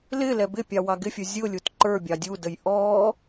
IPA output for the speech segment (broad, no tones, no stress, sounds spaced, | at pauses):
l ɪ l ɛ b ɪ pʲ ɑ w ɑ ɡ ɪ fʲ ə˞ zʲ ʊ lʲ u t ǃ ə˞ bʲ ɑ dʲ u d ə j ʔ ɔ